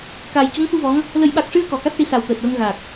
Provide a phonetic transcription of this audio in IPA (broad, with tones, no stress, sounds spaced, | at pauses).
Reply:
k aː˨˩ j c u˧˥ ŋ f u˧ v ɔ˧˥ ŋ | l ə˨˩˦ j ɓ a˨˩ k̚ ʂ ɨ˧ ə̯ k ɔ˨˩˨ k a˦˥ t̚ ʈ i˧˥ s a˨˩ w t̪ əː˨˩ t̚ w ə˧ ŋ ɣ a˨˩ k̚